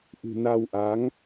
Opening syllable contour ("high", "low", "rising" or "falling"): low